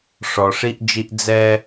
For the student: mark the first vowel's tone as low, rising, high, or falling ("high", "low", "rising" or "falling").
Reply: low